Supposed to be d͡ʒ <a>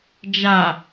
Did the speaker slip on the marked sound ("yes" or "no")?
no